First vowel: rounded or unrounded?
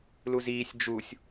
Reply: rounded